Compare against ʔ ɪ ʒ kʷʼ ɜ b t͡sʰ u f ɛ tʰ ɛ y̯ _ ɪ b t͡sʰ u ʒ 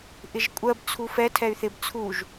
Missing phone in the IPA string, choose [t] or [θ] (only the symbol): θ